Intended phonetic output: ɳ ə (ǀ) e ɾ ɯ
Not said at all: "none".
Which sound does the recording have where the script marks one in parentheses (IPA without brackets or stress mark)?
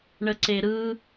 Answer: ǀ